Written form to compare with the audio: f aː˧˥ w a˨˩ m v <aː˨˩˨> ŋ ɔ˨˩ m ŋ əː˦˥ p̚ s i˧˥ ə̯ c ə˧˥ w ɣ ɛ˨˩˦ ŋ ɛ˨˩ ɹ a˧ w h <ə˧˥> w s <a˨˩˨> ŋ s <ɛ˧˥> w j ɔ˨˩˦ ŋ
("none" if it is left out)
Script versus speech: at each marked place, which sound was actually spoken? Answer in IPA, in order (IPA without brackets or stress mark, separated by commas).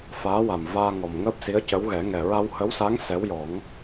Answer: aː˧, ə˧˥, a˧˥, ɛ˧˥